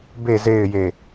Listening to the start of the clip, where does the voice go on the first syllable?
low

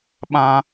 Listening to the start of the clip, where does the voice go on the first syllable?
high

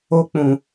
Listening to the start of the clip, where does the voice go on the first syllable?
high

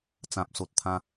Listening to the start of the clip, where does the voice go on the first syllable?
low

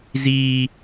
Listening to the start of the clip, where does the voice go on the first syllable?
high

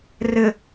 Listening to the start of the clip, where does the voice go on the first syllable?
low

